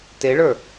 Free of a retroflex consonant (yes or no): no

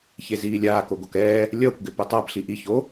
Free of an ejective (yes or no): yes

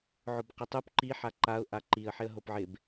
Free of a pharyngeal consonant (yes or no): no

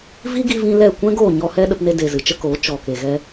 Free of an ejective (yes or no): yes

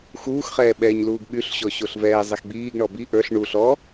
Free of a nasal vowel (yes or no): yes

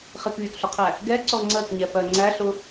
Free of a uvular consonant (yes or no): no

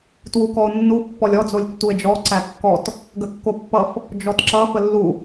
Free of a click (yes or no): no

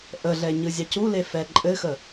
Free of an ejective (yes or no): no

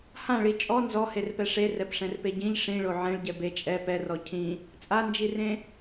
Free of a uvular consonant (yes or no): yes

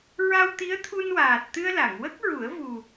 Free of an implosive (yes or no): yes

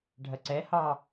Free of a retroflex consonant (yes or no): no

